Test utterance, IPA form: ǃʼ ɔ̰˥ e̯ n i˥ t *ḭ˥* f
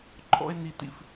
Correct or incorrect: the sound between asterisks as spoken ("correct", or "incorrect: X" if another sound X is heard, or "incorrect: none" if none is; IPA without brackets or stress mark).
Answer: correct